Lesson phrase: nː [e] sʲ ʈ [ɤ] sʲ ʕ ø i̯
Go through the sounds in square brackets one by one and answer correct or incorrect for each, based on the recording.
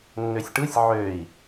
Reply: incorrect: ø, incorrect: ɯ

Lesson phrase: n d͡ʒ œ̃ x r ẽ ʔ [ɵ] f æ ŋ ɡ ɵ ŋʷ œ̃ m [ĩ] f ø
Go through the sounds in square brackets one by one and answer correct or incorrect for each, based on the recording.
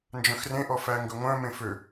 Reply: incorrect: ɔ, incorrect: ẽ

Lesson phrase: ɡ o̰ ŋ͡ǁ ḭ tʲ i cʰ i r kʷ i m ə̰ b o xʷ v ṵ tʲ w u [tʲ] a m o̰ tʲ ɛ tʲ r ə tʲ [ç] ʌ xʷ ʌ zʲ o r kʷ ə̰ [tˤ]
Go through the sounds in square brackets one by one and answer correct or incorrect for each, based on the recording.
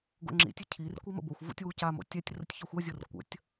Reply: incorrect: c, correct, incorrect: tʲ

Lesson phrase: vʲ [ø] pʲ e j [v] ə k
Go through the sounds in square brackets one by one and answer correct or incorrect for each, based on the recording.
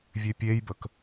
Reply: correct, incorrect: b

